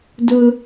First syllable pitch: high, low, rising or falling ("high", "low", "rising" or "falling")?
high